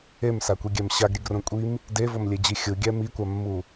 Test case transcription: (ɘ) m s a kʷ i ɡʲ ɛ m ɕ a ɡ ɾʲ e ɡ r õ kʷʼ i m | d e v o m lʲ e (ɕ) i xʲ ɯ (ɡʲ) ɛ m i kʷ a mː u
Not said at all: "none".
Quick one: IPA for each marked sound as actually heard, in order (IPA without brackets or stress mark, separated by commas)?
e, d͡ʑ, ɡʲ